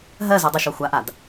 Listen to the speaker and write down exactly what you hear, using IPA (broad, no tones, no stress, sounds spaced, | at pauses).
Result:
ɦ ɜ z u dˤ u ʃ ɔ xʷ a ʔ a d